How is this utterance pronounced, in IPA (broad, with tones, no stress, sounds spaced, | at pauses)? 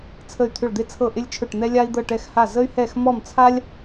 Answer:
t͡sʰ ə˧˩ y̯ t̪ʰ ʏ˧˩ ɭ d̪ e˧ t͡sʰ ɤ˧˩ ʔ ɪ˧ lʲ t͡ʃʰ ɵ˧˩ ʈ n̪ ɛ˧ lʲ a˧ i̯ d̪ ɤ˧˩ ʈ ɛ˧˩ x h a˧˩ z ə˧ y̯ h ɛ˧˩ x m ɔ˧˩ m t͡sʰ a˧ lʲ